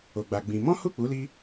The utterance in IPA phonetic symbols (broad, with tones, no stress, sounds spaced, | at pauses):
o˧ ɡ͡b a˧ ɡ͡b ĩ˧ m ɔ̃˦ h u˦˨ k͡p u˨˦ l i˧